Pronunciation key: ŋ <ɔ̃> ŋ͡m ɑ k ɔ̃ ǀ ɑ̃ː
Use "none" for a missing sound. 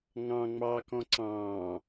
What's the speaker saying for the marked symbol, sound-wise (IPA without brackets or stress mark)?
ɑ̃